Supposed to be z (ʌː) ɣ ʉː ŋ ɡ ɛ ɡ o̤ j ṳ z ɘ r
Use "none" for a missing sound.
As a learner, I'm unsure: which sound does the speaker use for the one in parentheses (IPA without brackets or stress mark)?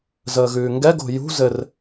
əː